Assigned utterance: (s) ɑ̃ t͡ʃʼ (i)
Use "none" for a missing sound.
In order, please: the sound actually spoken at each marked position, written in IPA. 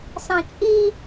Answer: s, i

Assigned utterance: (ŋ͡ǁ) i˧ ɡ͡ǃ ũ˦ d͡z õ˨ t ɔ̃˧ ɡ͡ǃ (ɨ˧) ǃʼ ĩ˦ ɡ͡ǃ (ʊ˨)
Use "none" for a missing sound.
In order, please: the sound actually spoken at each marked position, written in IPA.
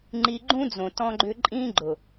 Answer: ŋ͡ǃ, ʏ˧, ʊ˨

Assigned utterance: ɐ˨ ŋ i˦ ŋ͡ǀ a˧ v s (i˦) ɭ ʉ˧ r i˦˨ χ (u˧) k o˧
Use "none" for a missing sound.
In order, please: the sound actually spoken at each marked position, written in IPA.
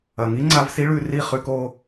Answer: i˦, ʉ˧

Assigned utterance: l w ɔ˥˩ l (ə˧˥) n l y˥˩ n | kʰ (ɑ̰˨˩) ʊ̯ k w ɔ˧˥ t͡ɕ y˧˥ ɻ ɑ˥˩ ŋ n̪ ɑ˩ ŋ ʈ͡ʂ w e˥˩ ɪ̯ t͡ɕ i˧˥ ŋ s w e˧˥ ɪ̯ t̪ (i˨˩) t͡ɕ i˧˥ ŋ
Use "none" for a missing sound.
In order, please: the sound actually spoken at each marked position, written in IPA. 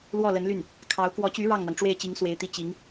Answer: ə˧˥, ɑ˧˥, i˥˩

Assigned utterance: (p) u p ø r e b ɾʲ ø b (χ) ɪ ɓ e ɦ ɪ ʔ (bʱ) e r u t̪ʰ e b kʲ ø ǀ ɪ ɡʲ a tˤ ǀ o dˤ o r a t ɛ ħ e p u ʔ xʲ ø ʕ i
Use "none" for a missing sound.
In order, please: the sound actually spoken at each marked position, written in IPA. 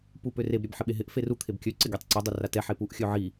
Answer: p, ħ, f

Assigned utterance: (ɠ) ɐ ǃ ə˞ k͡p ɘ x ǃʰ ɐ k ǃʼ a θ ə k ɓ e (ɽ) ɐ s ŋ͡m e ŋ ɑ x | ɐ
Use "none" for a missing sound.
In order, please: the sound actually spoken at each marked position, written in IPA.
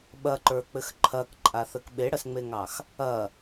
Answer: ɓ, ɽ

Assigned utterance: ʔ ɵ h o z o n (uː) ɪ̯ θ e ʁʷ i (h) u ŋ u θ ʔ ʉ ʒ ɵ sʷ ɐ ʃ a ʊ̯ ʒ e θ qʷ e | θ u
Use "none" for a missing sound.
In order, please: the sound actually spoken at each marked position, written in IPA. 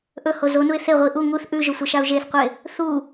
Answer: u, ʔ

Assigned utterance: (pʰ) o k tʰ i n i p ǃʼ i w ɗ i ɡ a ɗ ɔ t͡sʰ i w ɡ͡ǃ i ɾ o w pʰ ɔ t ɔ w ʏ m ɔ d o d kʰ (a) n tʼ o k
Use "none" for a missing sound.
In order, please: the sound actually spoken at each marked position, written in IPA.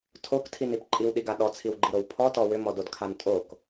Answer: tʰ, a

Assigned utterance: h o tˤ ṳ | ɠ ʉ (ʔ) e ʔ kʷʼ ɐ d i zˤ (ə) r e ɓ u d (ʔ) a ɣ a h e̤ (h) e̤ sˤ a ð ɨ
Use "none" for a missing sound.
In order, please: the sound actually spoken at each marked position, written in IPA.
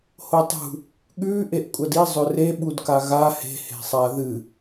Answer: ʔ, ɵ, k, h

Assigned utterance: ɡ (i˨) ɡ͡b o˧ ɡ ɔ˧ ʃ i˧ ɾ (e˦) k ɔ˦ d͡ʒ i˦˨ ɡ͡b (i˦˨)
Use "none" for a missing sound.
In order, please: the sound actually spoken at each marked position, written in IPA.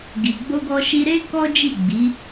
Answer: i˨, e˦, i˨˦

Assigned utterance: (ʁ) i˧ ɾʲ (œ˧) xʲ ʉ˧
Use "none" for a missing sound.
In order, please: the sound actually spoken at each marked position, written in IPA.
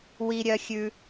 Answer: w, œ˧

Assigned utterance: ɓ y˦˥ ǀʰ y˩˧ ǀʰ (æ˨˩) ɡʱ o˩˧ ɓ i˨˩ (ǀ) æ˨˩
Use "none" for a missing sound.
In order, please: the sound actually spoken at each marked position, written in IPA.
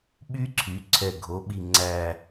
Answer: ɛ˨˩, ŋ͡ǀ

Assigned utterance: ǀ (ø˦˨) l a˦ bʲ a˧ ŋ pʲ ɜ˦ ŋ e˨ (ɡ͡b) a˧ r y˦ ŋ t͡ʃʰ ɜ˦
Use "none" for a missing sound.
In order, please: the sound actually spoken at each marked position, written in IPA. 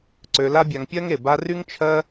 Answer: ø˧, b

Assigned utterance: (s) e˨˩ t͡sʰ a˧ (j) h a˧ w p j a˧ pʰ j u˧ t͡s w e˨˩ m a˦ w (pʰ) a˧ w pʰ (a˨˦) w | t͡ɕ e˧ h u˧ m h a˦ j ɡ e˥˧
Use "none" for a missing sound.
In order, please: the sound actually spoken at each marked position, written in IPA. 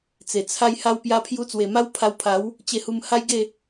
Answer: t͡s, j, pʰ, a˨˦

